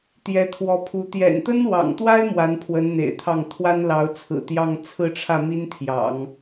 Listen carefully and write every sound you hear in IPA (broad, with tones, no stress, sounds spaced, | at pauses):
t̪ j ɛ˧˥ t̪ʰ w ɔ˧˥ pʰ u˧˥ t̪ j ɛ̰˨˩ n t̪ ə˥ n w ɑ̰˨˩ ŋ t̪ w a˥ ɪ̯ m w a˧˥ n pʰ w ə˧˥ n n̪ ḛ˨˩ ɪ̯ t̪ʰ ɑ˥˩ ŋ t̪ʰ w a˥ n l ɑ˧˥ ʊ̯ t͡sʰ ɹ̩˨˩ t̪ j ɑ˥˧ ŋ t͡sʰ ɹ̩˥˧ ʈ͡ʂʰ ä˥˩ m i˥ n t̪ʰ j ɑ̰˨˩˦ ŋ